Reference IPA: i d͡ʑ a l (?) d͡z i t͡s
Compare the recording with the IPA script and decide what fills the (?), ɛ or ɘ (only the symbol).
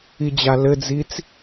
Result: ɘ